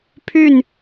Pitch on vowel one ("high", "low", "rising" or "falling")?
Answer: falling